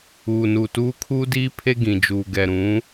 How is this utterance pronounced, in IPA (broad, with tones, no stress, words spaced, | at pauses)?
uː˨nu˨tuː˦ kʰuː˦diː˦ pʰe˦ɡĩ˨d͡ʒuː˨ ɡɛ˨ɾũ˨˦